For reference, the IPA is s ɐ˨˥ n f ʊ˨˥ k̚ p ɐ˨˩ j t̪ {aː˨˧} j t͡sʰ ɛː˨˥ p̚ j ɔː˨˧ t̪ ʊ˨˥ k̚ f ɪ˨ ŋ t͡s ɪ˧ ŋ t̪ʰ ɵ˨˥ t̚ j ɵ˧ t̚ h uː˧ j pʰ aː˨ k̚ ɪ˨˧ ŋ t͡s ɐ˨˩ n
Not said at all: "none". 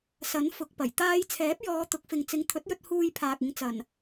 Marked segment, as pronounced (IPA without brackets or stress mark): aː˧